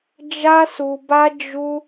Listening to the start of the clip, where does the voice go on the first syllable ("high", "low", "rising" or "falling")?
high